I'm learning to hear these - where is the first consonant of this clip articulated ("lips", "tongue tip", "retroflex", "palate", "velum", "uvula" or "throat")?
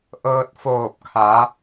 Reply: throat